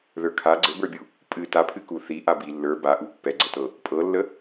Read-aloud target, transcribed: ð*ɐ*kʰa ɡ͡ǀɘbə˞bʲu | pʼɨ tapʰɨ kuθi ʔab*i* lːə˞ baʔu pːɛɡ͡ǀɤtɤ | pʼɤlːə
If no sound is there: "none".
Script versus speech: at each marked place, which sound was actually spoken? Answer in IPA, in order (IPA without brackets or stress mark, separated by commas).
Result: ə˞, i